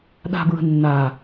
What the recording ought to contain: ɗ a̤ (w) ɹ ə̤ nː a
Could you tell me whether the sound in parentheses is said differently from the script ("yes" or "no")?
yes